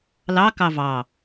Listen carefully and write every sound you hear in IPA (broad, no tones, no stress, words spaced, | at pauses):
lɑkɑ vɑ